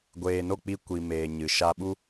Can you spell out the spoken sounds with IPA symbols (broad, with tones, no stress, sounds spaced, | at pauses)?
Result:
ɡʷ eː˨ n o˦˨ k͡p i˧ kʷ i˨ m eː˨ ɲ ɨ˨ ʃ a˧ ɓ u˦